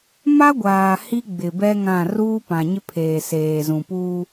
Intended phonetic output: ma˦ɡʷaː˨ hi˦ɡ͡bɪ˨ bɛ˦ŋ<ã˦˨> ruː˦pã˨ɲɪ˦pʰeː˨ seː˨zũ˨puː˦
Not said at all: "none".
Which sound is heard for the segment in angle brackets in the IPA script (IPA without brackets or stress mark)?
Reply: ã˦˨